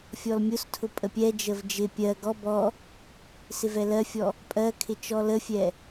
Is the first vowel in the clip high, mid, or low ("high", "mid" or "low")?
mid